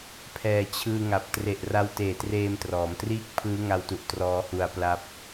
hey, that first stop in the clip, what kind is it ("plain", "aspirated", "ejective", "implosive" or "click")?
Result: aspirated